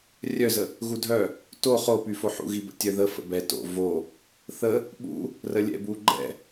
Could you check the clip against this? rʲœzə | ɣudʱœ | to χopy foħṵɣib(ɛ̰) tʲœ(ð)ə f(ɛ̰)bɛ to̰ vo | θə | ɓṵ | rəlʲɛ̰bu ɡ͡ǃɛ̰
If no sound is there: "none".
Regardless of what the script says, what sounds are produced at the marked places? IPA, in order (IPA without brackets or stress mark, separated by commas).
ə̰, ð, ə̰